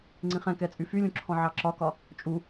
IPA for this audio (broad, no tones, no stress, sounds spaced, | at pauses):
ŋ͡ǀ ĩ χ ɛ̃ k ɛ t͡sʼ y f y lʲ ũ ǁʰ ɔ̃ ʕ ɑ ǁ ɒ k ɒ | t͡ʃʼ u